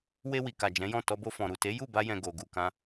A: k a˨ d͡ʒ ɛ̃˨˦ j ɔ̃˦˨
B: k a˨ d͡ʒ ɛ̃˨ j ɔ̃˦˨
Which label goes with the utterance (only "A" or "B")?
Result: A